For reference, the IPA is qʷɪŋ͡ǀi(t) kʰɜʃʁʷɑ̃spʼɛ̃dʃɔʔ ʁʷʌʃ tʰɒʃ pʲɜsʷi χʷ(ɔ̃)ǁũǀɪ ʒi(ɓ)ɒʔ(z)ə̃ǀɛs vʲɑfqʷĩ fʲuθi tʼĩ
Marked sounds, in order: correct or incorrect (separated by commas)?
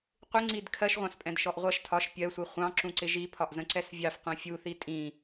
incorrect, incorrect, incorrect, correct